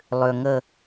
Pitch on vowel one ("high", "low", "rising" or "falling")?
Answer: low